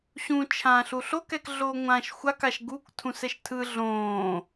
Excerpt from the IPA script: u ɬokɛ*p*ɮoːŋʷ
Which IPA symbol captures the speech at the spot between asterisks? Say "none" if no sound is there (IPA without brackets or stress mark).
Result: k